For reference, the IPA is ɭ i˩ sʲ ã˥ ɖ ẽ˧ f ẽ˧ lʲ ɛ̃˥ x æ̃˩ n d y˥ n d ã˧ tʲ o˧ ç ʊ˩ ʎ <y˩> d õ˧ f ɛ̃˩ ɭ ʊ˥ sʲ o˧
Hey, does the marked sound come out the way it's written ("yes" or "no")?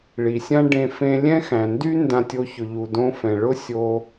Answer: no